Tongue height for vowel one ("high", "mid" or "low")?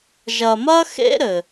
low